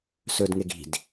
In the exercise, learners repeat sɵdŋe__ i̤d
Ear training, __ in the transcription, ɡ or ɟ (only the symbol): ɡ